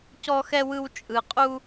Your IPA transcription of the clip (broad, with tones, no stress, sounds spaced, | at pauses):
c ɔ˦ x ɛ˦ w ɯ˦ w t͡ʃʼ ɯ˧ qʼ u˦